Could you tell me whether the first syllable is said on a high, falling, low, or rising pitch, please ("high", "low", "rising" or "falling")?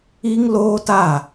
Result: high